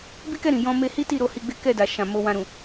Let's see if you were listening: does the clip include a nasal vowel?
yes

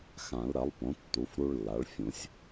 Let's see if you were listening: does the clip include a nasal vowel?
yes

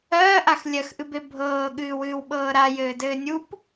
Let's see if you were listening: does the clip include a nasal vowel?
no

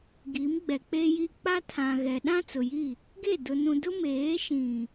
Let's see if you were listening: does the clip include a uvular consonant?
no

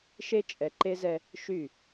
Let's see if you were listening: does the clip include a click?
yes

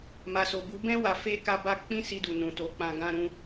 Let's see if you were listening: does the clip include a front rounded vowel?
no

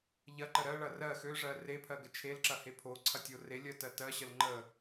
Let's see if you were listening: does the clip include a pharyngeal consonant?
no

